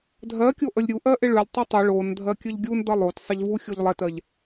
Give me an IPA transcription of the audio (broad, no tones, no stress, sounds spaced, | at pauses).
dʱ ɜ kʲ o ʔ ə lʲ ɾʲ u ʔ ɜ ʔ ɪ ɭ ʉ lʲ tˤ ʉ tˤ ɪ ɭ o n dʱ ɜ kʲ ə ʎ ɡʲ u n d ʌ lˠ o t sˤ ɪ ʎ v u xʲ o ʎ lˠ ɛ t ɜ ʎ